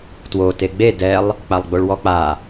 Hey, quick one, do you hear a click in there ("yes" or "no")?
no